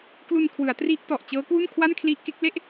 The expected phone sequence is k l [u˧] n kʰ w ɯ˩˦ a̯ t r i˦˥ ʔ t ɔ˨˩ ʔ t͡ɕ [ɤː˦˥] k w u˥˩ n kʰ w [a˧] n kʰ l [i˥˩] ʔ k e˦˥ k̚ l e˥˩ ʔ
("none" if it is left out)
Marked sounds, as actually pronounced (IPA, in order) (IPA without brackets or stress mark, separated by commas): u˧, ɤː˦˥, a˥˩, i˦˥